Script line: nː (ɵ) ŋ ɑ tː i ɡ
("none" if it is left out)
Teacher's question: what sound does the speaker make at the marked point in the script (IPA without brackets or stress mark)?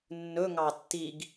ɵ